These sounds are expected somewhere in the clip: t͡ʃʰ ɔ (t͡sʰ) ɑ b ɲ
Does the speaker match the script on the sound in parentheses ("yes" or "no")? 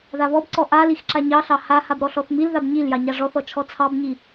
yes